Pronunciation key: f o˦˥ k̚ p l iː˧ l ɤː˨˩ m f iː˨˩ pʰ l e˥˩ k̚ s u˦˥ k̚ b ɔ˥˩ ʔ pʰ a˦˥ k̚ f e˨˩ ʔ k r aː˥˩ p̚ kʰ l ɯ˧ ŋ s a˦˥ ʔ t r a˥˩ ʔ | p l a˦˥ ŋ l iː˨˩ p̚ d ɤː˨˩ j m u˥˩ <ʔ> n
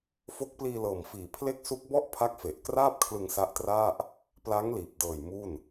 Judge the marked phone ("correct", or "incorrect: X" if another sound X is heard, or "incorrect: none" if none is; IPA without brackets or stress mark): incorrect: none